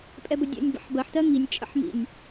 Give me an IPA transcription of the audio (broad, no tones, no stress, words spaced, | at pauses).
pʼɛbədʲə̰nʲ bə̰ħbɜħtɜ ŋinʲt͡ʃʼə̰ħmḭnʲ